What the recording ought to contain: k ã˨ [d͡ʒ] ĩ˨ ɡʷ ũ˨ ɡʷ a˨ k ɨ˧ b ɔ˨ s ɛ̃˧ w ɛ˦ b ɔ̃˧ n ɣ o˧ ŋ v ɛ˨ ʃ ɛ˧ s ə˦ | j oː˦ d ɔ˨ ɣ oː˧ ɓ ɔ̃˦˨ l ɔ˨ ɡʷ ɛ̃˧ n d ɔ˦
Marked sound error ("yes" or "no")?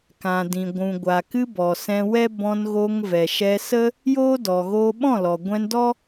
yes